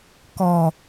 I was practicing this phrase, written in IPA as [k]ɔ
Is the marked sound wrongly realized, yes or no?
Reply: no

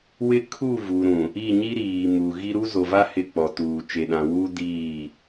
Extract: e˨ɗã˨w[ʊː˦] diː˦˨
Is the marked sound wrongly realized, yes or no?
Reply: yes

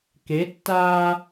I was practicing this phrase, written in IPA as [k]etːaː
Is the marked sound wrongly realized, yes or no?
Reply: no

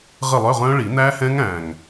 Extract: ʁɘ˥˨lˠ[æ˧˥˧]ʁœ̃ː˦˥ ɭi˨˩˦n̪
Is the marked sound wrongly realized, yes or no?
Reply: yes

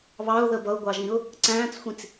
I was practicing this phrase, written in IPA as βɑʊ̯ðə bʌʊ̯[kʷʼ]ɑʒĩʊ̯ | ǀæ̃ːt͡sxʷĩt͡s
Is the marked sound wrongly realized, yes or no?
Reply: yes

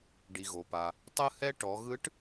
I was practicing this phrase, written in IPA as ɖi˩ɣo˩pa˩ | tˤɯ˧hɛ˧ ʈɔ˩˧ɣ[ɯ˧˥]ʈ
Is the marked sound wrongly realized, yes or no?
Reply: no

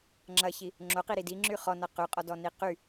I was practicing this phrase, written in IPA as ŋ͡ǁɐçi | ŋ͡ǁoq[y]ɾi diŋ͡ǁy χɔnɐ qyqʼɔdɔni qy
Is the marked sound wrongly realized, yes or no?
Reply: yes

